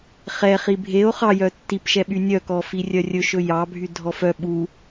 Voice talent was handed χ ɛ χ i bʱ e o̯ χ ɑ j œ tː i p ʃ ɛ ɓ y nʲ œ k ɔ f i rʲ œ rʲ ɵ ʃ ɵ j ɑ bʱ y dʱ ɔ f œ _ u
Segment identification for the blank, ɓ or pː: ɓ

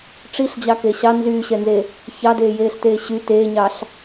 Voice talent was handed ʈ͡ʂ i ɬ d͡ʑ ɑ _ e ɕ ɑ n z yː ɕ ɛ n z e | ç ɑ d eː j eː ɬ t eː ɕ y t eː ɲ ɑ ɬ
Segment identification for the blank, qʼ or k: k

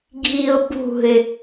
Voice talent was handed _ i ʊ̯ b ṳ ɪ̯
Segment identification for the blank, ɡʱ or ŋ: ɡʱ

